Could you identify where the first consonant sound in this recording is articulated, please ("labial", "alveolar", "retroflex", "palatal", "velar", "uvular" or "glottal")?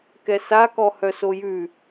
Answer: velar